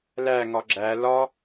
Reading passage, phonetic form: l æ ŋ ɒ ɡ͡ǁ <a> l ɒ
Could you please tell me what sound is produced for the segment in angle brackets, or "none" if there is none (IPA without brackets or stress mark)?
æ